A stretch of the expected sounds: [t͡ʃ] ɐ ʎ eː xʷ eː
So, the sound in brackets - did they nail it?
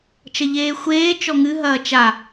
yes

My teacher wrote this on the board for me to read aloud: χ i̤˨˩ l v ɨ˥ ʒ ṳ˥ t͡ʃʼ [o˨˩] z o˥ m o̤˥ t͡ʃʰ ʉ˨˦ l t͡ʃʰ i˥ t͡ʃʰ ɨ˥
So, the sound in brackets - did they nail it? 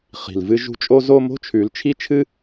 no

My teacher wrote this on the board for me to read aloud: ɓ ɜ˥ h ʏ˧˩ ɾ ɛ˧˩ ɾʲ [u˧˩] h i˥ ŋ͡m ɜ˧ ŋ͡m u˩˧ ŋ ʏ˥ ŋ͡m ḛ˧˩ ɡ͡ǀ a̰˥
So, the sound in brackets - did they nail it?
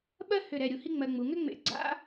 no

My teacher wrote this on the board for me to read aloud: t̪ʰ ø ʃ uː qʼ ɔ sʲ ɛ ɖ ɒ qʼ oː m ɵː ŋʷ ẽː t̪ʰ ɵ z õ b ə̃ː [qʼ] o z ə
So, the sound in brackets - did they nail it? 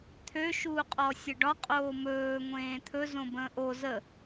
no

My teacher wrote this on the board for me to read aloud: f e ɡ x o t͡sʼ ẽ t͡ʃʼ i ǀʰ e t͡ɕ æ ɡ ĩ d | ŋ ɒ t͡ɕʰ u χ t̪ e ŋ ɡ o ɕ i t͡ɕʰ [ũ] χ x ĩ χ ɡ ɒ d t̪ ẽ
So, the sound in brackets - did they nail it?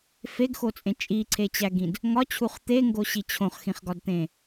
no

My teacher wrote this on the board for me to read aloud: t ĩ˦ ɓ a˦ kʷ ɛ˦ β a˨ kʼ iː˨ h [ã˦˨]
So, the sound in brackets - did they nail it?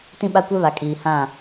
yes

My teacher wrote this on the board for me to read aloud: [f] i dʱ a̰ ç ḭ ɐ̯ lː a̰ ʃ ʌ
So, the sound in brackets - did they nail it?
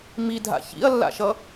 no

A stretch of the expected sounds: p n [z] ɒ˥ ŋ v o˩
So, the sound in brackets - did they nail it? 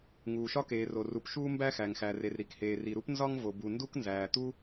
yes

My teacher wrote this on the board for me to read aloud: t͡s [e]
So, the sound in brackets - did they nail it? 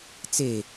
yes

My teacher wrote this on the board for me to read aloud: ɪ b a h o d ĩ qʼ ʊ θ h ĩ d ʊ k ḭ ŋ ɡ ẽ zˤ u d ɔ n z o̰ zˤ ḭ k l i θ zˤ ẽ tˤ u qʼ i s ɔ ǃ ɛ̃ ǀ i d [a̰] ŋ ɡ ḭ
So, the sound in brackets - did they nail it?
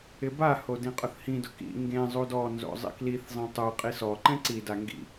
no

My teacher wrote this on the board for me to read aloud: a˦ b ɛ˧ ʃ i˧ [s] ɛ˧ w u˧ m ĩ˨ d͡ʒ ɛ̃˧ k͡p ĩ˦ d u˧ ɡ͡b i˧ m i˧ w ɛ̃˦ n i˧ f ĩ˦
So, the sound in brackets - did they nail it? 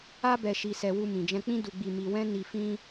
yes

